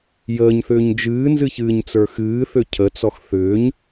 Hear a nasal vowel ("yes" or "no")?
no